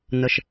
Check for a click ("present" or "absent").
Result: absent